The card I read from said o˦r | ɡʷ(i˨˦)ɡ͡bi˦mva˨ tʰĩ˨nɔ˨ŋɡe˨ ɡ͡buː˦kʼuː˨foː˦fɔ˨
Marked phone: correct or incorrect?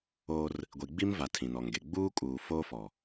incorrect